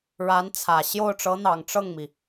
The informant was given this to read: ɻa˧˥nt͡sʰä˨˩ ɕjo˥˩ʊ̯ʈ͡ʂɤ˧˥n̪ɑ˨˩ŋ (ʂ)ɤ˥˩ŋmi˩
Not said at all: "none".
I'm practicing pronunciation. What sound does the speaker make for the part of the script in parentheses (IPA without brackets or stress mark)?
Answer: ʈ͡ʂ